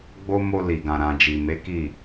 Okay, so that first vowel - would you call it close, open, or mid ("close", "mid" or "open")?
mid